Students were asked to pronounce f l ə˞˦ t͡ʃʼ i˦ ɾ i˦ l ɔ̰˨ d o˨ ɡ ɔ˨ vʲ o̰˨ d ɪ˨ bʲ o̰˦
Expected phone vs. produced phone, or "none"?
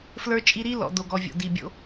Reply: ɪ˨ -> i˨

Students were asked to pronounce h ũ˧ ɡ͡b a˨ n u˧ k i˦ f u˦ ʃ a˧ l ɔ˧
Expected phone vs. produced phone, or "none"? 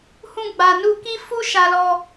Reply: none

